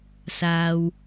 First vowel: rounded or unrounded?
unrounded